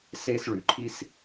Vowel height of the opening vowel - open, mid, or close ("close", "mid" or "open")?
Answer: mid